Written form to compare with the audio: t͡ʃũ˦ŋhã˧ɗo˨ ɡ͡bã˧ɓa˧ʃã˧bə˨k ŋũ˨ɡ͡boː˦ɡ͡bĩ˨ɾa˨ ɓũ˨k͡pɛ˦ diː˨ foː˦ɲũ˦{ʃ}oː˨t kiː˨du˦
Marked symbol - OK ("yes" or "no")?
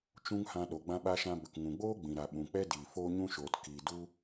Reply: yes